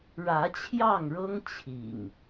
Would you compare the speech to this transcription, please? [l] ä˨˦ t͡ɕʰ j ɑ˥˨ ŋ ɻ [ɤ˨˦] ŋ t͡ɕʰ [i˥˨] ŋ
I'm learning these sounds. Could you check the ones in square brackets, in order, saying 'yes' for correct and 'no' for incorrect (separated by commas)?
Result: no, no, no